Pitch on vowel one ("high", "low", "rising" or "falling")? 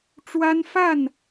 high